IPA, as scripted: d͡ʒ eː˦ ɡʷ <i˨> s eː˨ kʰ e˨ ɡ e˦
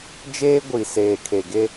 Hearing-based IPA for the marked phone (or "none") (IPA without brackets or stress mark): i˨